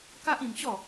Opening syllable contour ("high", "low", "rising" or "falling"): high